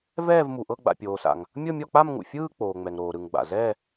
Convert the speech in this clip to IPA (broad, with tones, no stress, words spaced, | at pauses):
vɛː˥˧vmu˨ʔɤ˥˧ ɡ͡ba̰˨pʲoː˨sa̰˨ŋ | mʲɤ˥˧mʲɔ˥˧k͡pa˥˧m ŋṵ˨fʲɯː˥˧ k͡poː˨ŋ͡mɛ˨ŋ ɾoː˨ɾɯ˨ŋɡ͡ba̰˨ zɛ˥˧